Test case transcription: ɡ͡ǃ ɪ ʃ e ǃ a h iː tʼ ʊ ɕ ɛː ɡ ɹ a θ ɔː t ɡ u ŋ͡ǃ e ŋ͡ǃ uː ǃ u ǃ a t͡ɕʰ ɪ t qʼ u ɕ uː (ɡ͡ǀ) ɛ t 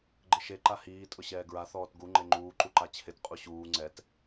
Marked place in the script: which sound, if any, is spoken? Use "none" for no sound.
ŋ͡ǀ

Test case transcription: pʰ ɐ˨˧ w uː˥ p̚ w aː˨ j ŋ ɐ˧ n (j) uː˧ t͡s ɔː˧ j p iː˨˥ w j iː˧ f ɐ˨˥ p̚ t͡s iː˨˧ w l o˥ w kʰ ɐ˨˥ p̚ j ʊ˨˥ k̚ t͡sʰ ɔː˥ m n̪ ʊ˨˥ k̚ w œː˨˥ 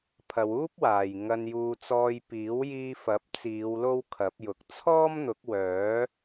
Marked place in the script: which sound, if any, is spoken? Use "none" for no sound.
j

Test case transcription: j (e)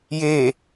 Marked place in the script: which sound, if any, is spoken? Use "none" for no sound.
e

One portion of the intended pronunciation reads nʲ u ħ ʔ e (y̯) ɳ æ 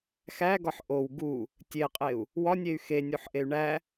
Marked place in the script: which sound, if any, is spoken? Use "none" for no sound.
y̯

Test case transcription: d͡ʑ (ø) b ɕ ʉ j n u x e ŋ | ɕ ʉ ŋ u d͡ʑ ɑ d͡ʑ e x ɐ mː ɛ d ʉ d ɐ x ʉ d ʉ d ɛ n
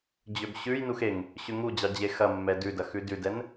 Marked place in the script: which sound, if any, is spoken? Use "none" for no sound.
ø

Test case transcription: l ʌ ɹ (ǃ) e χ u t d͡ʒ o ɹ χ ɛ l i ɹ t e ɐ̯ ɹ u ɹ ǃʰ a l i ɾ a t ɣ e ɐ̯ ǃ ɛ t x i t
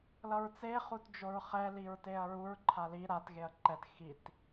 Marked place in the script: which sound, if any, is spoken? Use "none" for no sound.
t͡s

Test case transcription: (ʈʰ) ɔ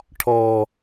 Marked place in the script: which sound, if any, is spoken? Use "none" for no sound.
ʈʰ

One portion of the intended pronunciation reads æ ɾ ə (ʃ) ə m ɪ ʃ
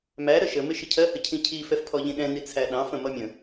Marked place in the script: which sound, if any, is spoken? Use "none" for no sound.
ʃ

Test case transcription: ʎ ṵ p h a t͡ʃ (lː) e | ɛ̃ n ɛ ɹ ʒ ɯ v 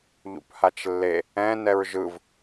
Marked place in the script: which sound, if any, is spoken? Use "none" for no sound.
lː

